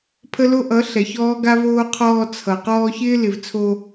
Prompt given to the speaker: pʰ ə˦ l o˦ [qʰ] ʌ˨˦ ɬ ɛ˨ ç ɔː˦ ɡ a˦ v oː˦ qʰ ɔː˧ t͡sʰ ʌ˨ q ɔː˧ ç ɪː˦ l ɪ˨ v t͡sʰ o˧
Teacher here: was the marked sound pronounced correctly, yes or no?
no